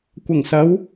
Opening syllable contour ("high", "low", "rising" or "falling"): low